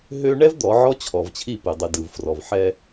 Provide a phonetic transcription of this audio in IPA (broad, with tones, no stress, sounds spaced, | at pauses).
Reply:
ɦ ø˦ ɳ ɛ˦ v d̪ ɔ˨˦ ʕ ɔ˦ t͡ɕʰ ɔ˨ v t͡ɕʰ i˦˨ p ɨ˨ dˤ ɨ˨ d ɯ˨ v f r ɔ˨ v ħ ɛ˦